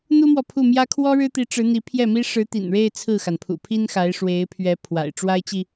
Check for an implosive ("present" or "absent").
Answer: absent